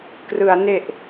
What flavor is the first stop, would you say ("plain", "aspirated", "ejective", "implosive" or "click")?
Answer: plain